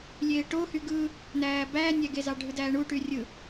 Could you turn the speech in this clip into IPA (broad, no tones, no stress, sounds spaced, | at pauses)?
lʲ eː ʈ o h y ɡ ɯ | n æː b æː nʲ æ ɡ e z ɑ ɖʱ ɯ d æː ɳ u ʈ y rʲ ɯ